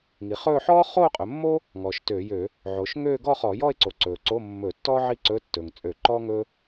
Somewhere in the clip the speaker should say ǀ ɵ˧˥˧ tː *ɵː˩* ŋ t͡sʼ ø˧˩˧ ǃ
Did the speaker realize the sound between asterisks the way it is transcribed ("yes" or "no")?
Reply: yes